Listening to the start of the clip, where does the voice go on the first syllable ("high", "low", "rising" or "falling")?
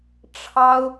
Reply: high